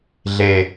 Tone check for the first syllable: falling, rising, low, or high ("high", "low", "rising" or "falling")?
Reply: low